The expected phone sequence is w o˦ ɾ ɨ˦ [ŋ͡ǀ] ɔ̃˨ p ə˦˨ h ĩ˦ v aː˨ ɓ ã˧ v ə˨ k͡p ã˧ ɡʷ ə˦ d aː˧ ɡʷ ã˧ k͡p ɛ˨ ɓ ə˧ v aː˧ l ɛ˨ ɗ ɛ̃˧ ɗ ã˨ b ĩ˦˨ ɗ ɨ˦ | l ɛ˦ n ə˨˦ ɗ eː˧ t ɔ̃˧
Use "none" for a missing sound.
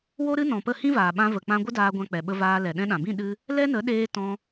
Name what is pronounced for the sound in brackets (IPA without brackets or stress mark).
n